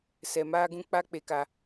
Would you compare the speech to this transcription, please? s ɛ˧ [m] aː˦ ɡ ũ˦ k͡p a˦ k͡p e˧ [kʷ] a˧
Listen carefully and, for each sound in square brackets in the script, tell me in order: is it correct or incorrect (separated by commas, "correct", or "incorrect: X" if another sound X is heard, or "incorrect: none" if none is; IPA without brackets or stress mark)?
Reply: correct, incorrect: k